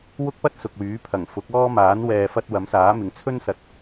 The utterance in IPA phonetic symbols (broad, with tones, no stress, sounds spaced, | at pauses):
w ʊ˥ k̚ p ɐ˥ t̚ s ʊ˨ k̚ w yː˨˥ pʰ ɐ˨˩ ŋ f ʊ˨˥ k̚ ɔː˥ m aː˨˥ n w ɛː˧ f ɐ˥ t̚ w ɐ˨˥ m s aː˨˥ m ɪ˨ ŋ t͡sʰ ɵ˥ n s ɐ˨ t̚